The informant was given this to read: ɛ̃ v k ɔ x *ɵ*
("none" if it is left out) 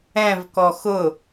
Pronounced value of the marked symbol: ʊ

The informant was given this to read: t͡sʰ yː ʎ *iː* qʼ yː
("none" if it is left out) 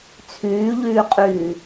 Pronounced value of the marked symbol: yː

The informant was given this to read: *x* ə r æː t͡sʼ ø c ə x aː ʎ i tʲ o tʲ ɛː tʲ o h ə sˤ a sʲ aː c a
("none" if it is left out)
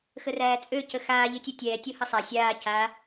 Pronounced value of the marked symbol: x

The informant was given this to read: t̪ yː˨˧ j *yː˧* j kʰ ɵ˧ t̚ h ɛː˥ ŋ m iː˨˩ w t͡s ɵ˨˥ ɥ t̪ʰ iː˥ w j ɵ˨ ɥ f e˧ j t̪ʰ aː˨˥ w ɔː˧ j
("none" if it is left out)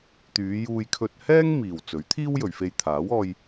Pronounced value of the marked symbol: uː˧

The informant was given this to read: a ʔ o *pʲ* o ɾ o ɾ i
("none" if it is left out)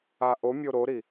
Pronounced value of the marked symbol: mʲ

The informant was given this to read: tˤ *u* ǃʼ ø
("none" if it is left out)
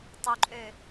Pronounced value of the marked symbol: u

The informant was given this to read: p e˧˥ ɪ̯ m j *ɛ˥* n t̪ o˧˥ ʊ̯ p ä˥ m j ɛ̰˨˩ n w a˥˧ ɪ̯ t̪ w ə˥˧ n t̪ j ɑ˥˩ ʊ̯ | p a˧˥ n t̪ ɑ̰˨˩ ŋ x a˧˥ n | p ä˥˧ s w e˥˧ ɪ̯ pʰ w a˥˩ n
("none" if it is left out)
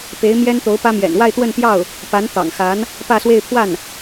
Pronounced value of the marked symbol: ɛ˥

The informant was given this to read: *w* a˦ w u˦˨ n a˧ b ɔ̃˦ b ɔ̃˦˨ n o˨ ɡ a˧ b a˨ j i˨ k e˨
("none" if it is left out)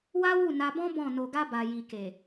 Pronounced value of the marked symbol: w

